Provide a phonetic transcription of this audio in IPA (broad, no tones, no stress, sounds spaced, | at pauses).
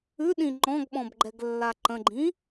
ʉ ɗ ĩ ŋ͡ǃ ɔ̃ ɡ ɓ ɔ̃ b ɡ͡ǃ ɛ ɡ lː a ǃ ə̃ ɡ͡ǃ ĩ